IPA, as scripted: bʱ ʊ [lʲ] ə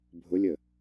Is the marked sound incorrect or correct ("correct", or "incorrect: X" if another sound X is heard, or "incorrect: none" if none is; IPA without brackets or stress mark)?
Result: correct